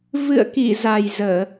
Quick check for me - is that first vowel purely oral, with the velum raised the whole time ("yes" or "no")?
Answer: yes